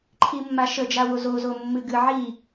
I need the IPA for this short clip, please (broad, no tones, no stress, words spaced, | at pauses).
ǃʰimːaʃə d͡ʒawozo zomːɨɡɨ ʕi